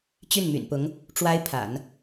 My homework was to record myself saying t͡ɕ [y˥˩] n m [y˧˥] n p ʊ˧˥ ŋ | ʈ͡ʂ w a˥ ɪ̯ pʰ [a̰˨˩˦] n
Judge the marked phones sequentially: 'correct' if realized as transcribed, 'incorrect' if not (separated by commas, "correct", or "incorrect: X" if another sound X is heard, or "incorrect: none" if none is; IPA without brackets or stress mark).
correct, incorrect: y̰˨˩, correct